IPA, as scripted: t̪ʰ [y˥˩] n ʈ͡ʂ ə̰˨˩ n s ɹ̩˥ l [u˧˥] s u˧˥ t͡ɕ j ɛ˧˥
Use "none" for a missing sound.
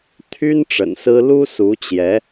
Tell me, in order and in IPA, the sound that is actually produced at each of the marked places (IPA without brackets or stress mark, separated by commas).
y˥, u˥